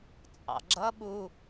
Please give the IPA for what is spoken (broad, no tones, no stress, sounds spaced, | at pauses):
t͡sʼ ɑ̰ ɡ͡ǁ ʌ ɓ u